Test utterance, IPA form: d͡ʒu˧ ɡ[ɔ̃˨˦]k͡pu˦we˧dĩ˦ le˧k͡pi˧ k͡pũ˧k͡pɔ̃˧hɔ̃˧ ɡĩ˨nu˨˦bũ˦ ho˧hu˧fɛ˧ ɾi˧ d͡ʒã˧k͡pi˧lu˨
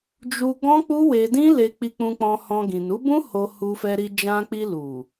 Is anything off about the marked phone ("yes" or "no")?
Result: yes